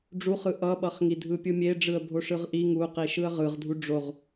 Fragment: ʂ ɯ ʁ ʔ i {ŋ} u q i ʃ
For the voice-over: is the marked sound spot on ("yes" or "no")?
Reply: yes